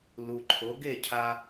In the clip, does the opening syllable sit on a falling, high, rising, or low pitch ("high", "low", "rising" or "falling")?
low